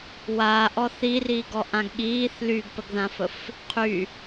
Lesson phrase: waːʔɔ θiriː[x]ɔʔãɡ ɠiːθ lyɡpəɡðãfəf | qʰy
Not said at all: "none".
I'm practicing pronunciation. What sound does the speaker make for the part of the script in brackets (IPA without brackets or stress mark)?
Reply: ɡ